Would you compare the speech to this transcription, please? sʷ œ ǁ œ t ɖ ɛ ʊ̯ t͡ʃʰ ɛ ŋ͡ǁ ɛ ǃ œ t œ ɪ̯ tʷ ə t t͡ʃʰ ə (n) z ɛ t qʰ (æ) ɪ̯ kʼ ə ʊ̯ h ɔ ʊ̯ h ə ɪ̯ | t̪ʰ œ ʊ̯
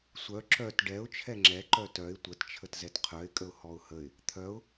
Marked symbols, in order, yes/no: no, no

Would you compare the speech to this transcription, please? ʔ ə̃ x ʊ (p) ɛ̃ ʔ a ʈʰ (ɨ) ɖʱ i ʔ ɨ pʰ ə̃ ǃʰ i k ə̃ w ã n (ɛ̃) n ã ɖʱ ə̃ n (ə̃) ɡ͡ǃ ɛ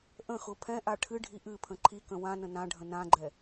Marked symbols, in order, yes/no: no, yes, no, no

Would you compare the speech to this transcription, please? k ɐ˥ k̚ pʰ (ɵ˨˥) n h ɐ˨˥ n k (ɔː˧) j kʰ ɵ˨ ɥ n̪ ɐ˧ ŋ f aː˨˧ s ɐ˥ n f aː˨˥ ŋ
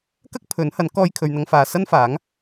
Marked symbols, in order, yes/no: yes, yes

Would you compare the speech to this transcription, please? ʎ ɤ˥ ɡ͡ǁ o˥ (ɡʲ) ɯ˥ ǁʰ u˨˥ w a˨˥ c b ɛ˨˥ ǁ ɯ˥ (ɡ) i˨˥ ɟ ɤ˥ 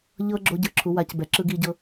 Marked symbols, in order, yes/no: no, yes

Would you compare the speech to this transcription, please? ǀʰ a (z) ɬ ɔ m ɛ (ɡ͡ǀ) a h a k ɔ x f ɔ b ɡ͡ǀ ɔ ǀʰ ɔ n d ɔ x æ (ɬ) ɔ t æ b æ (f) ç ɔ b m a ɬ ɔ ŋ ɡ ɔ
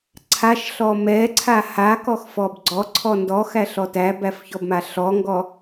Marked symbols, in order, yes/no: no, no, yes, yes

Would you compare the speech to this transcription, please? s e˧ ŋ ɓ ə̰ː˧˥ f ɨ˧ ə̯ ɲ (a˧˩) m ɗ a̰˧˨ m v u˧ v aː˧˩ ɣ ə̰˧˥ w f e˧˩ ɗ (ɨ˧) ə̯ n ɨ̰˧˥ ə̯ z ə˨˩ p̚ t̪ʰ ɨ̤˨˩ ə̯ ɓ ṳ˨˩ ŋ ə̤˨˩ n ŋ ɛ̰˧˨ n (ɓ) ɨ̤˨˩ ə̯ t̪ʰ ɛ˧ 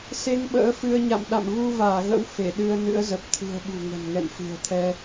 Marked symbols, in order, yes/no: no, yes, no

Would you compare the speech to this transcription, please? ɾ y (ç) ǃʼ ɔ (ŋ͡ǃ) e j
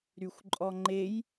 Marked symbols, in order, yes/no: no, yes

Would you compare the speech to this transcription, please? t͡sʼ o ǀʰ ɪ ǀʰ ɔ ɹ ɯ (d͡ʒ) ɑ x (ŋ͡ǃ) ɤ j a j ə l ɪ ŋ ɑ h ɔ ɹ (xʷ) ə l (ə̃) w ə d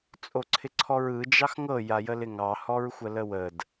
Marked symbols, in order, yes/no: yes, no, yes, no

